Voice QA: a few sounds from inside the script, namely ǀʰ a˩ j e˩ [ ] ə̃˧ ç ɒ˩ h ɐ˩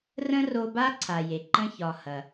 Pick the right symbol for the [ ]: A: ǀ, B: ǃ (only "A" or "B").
B